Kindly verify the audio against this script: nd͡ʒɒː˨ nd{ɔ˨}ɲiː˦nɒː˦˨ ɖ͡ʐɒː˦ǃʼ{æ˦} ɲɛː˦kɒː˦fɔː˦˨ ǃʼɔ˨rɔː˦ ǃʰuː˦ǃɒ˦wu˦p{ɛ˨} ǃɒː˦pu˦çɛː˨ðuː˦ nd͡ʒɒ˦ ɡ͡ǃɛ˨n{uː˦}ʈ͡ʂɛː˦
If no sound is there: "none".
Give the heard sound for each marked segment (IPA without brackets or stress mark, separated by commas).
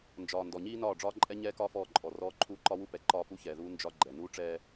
ɔ˨, ɛ˦, ɛ˨, uː˦